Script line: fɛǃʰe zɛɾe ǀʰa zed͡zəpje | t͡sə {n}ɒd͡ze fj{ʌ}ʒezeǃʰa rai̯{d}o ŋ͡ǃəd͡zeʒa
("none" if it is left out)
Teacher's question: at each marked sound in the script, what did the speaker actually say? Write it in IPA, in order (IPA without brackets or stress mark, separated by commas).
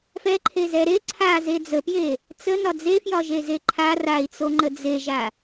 n, ɒ, t͡s